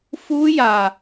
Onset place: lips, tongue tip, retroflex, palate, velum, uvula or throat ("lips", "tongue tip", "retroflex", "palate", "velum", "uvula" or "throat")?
lips